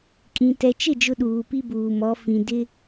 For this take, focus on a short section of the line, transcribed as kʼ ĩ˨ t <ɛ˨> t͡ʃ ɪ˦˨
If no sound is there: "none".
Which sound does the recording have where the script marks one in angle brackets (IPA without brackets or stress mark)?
ɛ˨